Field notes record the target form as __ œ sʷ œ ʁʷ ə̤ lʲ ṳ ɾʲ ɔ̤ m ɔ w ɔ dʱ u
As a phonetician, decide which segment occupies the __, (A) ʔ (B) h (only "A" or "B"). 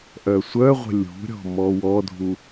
A